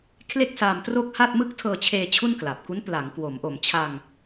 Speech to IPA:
kʰ l e˥˩ k̚ s aː˧ m t r o˥˩ k̚ h a˥˩ t̚ m ɯ˥˩ k̚ tʰ ɤː˧ t͡ɕʰ eː˧ t͡ɕʰ u˥˩ n k l a˨˩ p̚ k u˦˥ n p l a˩˦ ŋ k w o˩˦ m ʔ o˨˩ m t͡ɕʰ a˧ ŋ

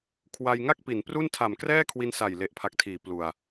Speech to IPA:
kʰ w a˧ j ŋ a˥˩ k̚ p i˩˦ n p r u˥˩ n tʰ a˨˩ m k r ɛː˥˩ kʰ w i˧ n s a˨˩ j l e˨˩ ʔ pʰ a˨˩ k̚ tʰ iː˩˦ p l u˨˩ a̯

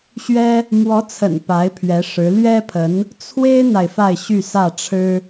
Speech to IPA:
ɕ ɥ ɛ˥ | m w ɔ˧˥ t͡sʰ ə̰˨˩ n p a˧˥ ɪ̯ pʰ ɥ ɛ˧˥ ʂ ɻ̩˧˥ l ɥ ɛ˥ pʰ ə˧˥ n | t͡sʰ w e˥ ɪ̯ n̪ a˨ ɪ̯ f a˥˧ ɪ̯ ɕ y˥˧ s ä˥˩ ʈ͡ʂʰ ɻ̩˥

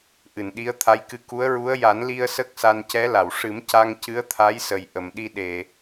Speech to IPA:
ʔ ɨ˨˩˨ n ɗ i˧˥ ə̯ t̪ʰ a˧˥ j k ɨ˧ k u˧˥ ə̯ ɹ u˧˥ ə̯ j a˨˩˦ n l i˧ ə̯ s ə˦˥ k̚ s a˧ n c ɛ˧˥ l a˨˩˨ w ʂ ɨ˨˩˦ m c a˧ ŋ c ɨ˧˥ ə̯ t̪ʰ a˧˥ j s ə˨˩ j ʔ ə˨˩˨ m ɗ i˧ ɗ e˨˩˨

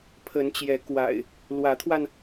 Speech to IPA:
pʰ ə˨˦ n t͡ɕ j ɛ˨˦ k w a̰˨˩ ɪ̯ | l w ä˨˦ t̪ʰ w a˧ n

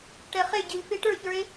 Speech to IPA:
ʈ ɛ χ e ɟ i l f e ʈ ə˞ ç ə˞ e̯

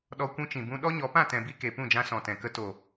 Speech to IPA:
ɗ ɔ˧ kʷ ũ˧ t͡ʃ ĩ˨ b ũ˧ ɗ ɔ˦ ɲ ɔ˨˦ p ã˦˨ t ɛ̃˨ b i˧ k e˨ p ũ˦˨ d͡ʒ ã˧ s ɔ̃˨ t ɛ̃˨ k ə˧ t o˨

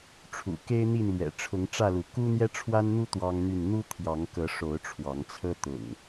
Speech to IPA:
ʈ͡ʂʰ ṵ˨˩ k e˦ ɪ̯ n̪ i˥˨ n l ɥ ɛ̰˨˩ ʈ͡ʂʰ ʊ˨˦ ŋ ʈ͡ʂ ä˥˨ l u˨˦ k u˦ n̪ j ɛ˦ ʈ͡ʂʰ w a˦ n n̪ u˦ t̪ w ɑ˦ ŋ n̪ y˥˨ n n̪ u˦ t̪ʰ j ɑ˨˦ ŋ k ɤ˨˦ ʂ o˨˦ ʊ̯ ʈ͡ʂʰ w ɑ˨˦ ŋ t͡sʰ ɤ˦ t̪ ʊ̰˨˩ ŋ

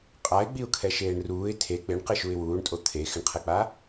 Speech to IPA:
qʼ a ɪ̯ ɡ͡b i ʊ̯ kʰ ɛ ʃ eː ɳ r uː ɪ̯ tʰ e k͡p ɪ ɳ q ɪ ʃ u ɪ̯ w uː ɳ tʼ o t̪ʰ e x ɪ ɳ qʰ ɛ k͡p a

